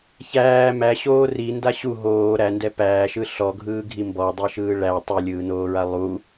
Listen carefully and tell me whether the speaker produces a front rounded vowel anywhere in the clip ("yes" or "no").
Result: no